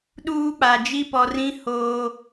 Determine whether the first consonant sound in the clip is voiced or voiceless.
voiced